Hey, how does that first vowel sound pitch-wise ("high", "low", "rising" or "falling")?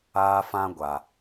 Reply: high